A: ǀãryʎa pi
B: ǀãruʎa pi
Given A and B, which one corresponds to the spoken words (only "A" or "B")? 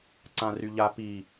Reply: A